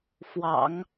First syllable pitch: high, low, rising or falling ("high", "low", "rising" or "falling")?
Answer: low